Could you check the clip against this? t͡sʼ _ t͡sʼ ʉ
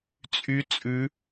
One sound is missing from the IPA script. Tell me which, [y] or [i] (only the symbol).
y